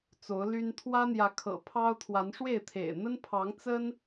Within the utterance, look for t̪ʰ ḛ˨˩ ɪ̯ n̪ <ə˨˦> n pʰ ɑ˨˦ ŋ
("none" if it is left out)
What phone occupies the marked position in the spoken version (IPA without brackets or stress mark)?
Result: ə˦